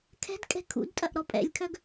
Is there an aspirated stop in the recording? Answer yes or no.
yes